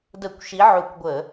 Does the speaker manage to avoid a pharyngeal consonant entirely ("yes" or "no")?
no